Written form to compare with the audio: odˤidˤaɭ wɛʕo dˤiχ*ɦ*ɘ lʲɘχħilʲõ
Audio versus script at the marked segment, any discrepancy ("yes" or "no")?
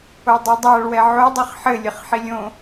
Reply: yes